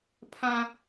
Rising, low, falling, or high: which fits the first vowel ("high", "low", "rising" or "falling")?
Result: high